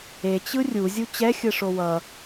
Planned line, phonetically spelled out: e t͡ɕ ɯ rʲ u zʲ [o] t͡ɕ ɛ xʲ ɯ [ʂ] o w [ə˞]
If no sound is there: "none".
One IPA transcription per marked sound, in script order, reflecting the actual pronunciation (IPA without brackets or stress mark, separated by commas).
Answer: u, ʂ, ʌ